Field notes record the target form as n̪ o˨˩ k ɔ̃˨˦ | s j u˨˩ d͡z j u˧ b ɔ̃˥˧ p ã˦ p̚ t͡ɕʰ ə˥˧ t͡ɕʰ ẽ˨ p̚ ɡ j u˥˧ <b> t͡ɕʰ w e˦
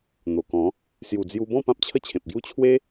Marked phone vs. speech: incorrect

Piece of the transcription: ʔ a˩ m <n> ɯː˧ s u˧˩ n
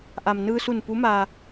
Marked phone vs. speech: correct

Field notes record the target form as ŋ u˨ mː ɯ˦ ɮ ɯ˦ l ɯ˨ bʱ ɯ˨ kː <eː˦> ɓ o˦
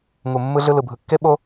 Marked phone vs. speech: incorrect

